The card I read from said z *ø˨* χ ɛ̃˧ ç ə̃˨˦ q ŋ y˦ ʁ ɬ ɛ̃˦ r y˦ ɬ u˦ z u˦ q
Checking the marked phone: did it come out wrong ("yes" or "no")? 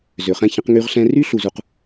no